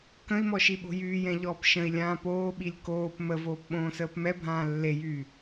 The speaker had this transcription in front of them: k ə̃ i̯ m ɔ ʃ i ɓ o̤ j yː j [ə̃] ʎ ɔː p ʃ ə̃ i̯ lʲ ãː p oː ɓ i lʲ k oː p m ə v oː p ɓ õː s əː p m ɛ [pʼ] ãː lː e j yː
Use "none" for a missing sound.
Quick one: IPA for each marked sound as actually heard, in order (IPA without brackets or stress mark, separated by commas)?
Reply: ɛ̃, bʱ